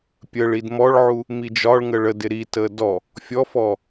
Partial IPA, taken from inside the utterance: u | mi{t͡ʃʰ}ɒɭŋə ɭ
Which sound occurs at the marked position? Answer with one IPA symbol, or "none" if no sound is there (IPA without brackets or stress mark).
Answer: d͡ʒ